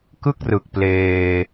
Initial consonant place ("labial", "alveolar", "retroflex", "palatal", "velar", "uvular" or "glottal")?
velar